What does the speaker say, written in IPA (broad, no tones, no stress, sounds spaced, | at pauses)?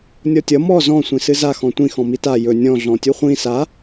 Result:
nʲ ɔ tʲ ʌ m ɔ z ɔ̃ sʷ ĩ s ɨ z a x ɔ̃ tʷ ĩ x ɔ̃ m i t a j ɵ nʲ ɔ̃ ɮ ɔ̃ tʲ u χʷ ĩ s a